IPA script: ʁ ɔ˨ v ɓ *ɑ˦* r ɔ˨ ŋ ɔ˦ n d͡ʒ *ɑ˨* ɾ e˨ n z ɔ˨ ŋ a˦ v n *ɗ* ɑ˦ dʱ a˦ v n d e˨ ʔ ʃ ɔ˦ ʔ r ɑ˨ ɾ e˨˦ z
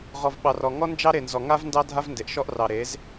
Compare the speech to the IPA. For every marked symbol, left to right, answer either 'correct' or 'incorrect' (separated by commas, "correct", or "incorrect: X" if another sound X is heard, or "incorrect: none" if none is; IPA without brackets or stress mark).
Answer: incorrect: ɑ˨, incorrect: ɑ˦, incorrect: d